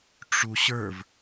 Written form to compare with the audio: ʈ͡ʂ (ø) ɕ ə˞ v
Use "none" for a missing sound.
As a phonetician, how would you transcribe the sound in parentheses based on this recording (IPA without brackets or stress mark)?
u